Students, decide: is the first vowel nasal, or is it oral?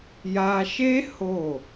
oral